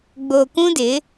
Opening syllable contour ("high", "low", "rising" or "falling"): low